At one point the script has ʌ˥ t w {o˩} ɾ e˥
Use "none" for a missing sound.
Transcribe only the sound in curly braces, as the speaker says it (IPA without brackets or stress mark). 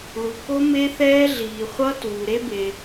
u˩